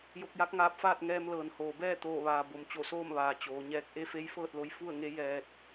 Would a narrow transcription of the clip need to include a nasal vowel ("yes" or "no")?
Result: no